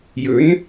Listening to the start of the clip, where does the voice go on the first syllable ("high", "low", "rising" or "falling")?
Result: rising